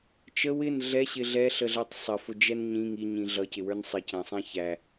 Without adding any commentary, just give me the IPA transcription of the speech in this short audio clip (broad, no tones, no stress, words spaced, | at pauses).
t͡ʃə wɪn ɮɛɕɪ ɮɛɬəɮætˤ sˤəfʊd͡ʒɛn ɲĩ ŋiɲĩ ɮʌcɪwə˞n sˤɪcæ̃sˤæ̃ çæ